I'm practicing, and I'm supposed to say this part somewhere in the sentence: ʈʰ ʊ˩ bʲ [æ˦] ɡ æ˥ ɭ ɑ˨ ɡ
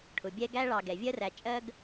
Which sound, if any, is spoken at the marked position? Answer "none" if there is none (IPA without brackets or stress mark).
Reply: ɛ˦